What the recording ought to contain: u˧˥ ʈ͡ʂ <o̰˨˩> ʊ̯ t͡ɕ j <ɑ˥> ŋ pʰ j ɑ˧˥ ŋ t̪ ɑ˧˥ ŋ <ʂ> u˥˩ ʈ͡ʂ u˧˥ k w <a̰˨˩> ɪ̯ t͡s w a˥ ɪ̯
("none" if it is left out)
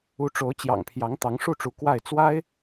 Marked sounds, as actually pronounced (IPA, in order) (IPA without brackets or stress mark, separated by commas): o˧˥, ɑ̰˨˩, ʂ, a˥˩